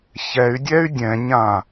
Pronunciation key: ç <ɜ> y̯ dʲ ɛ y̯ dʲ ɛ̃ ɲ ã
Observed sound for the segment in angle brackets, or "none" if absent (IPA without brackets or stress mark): ɛ